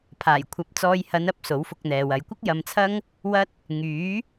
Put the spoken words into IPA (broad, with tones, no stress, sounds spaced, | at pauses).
pʰ aː˨˩ j kʷʰ ɐ˨˥ p̚ t͡s ɔː˧ j h ɐ˨˧ n ɐ˨˥ p̚ s o˨˥ w f ʊ˧ k̚ n̪ ɛː˨ w ɐ˨˧ j kʷ ɪ˥ k̚ j ɐ˧ m t͡sʰ ɐ˥ ŋ | w ɐ˥ t̚ | ŋ yː˨˥